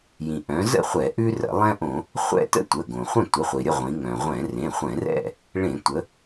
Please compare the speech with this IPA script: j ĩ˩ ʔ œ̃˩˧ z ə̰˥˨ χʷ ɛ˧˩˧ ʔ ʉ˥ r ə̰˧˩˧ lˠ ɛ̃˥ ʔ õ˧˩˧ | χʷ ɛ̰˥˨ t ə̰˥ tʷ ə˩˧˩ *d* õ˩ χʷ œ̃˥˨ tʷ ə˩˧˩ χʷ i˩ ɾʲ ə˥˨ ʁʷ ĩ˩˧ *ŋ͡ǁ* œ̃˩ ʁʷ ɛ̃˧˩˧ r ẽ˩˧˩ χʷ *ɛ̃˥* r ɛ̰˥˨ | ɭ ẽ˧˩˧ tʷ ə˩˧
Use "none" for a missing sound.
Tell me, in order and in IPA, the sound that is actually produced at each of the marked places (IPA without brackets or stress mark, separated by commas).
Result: ɡ, ŋ, ɛ̃˧˩˧